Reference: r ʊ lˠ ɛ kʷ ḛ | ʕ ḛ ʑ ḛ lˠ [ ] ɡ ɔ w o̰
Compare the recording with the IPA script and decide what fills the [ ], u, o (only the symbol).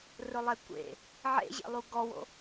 u